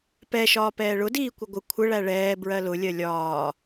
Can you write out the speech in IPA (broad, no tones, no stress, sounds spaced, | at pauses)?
p ɛ ʃ ɒː p ɛː ɭ ʊ d iː kʷ ɪ ɡʷ ɪ kʷʰ ə ɭ æ ɭ ɛː b ɹ ɜ l ʊ lʲ ɜ lʲ ɒː